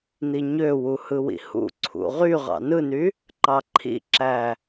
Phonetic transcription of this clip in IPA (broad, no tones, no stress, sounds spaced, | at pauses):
n̪ i ɲ ø w u h ɯ w ḭ h ṵ ǀʰ ṵ ʁ y ʁ ɑ̰ n ɯ n y | ǃ ɑ ǃʰ ḭ ǁ æ